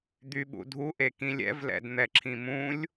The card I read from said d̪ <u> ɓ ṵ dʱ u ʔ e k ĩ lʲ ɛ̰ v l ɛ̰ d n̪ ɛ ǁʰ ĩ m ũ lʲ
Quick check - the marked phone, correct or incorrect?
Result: incorrect